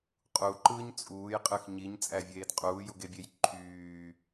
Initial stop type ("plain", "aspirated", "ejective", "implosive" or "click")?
ejective